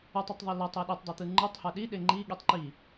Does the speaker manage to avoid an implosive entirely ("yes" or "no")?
no